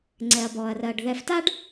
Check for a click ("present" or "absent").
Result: present